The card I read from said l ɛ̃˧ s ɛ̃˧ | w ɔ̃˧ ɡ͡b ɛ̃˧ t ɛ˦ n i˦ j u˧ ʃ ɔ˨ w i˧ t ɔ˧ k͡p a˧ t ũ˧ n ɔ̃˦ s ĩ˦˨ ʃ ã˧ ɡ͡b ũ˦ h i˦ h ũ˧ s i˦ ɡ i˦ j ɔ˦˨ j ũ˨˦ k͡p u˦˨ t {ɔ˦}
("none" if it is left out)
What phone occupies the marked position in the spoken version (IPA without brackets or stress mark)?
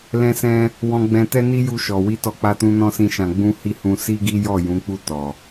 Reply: ɔ˨